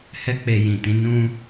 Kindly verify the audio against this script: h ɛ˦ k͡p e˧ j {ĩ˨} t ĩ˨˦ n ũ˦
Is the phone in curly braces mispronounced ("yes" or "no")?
no